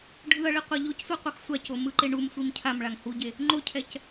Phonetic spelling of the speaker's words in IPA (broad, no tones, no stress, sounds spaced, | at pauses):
ɖʱ ɯ ɐ̯ ɭ i qʷ a ʎ o c sʷ i qʷ ʌ x sʷ a c o m ɯ ǃ e ɳ u m sʷ i m cʰ a m ɭ a ŋ h u ɟ e | ŋ͡ǃ o cʰ ɛ c